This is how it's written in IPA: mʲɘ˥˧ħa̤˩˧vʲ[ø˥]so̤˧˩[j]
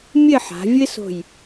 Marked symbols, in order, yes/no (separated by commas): no, yes